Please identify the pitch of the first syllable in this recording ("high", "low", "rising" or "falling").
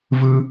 high